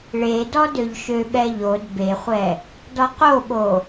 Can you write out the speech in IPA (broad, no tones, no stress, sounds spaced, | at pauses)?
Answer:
ɭ e d ɔ d ø ʎ ʃ ø ɓ ɛ ʎ o d b e χʷ ɛ | d ɔ q o ɓ o